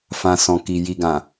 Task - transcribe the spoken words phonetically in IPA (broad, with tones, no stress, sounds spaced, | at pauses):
f ã˨ s ɔ̃˨ k i˨ j i˨ ɡ ã˨